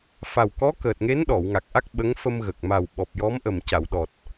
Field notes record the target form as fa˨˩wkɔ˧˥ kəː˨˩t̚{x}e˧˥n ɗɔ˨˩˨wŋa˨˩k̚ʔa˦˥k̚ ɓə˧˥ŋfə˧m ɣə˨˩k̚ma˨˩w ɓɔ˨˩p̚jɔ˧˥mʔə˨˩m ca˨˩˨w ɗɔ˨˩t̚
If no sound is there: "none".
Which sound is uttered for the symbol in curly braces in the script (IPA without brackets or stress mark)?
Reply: ŋ